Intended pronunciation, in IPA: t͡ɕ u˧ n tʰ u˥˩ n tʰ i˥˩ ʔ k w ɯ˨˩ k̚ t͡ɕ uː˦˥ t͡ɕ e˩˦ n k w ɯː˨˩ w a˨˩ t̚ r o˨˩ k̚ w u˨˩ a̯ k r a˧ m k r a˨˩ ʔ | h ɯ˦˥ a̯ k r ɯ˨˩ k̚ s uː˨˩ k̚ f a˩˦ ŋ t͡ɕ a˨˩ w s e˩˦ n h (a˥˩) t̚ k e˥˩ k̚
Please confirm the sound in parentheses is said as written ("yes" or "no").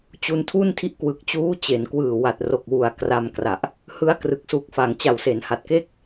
no